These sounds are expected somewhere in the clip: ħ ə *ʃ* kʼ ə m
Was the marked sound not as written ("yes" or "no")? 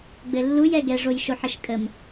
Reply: no